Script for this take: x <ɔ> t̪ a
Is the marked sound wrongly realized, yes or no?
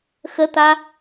yes